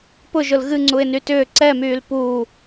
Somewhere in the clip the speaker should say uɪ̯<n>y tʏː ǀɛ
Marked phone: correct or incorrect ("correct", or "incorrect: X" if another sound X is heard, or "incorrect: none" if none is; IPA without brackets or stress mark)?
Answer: correct